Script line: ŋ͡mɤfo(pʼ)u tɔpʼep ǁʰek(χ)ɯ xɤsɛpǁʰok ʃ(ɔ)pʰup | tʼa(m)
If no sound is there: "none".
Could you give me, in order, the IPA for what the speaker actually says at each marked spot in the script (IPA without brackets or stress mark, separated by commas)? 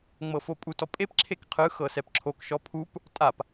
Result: pʼ, qʰ, ɔ, p